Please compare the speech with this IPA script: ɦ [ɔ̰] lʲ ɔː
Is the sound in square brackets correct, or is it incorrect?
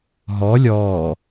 incorrect